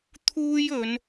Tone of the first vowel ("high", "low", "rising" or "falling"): high